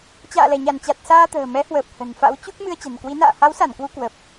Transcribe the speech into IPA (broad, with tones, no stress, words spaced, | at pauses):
t͡ɕa̰ː˧˨lɛ˧˩ɲa˧˩nt͡ɕa˨˩t̚ saː˧t̪ə̤ː˨˩mɛ˨˦hwəː˨˩p̚ hə̤˨˩nfa̰˧˥w t͡ɕu˦˥k̚ mɨ˧ə̯t͡ɕə̤˨˩n kwi˨˦ na̰ː˧˨ha˨˦wsa˧˩n kwu˧kwə˨˩p̚